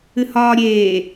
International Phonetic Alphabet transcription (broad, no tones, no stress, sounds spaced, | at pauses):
ɨ h ɒː ɾʲ eː